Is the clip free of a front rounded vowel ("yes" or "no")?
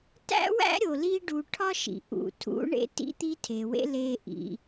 yes